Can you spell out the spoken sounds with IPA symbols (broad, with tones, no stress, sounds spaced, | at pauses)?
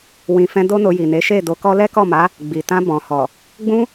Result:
w ĩ˨ f ɛ̃˧ d o˦ n o˧ j i˨ n e˨˦ ʃ e˦˨ d o˧ k ɔ˦ l ɛ˦ k ɔ˦˨ m a˨˦ | ɡ͡b i˨ t ã˧ b ɔ̃˨ h ɔ˨ | ɡ͡b ũ˦